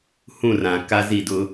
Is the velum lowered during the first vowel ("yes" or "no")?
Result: yes